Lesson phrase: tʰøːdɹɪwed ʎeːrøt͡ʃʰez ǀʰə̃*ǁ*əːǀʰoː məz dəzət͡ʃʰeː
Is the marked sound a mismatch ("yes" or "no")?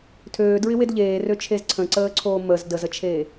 yes